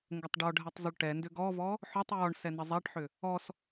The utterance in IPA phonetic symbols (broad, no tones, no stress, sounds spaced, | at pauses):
ŋ ɡ ə tˤ ɖ ɔ ɖʱ ɛ tˤ zˤ ʏ ɭ ʈ ɛ n d ʏ ɡ ɔ v ɔ | ħ ɔ tˤ j ɔ ɳ s ɛ n ə zˤ ɛ ʈ ħ ʏ | ɔ s